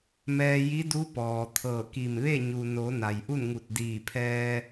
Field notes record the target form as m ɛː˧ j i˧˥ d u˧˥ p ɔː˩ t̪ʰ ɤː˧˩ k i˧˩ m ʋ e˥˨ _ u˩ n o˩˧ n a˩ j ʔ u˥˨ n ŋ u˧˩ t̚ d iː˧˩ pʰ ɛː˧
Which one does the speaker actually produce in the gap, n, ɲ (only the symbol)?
ɲ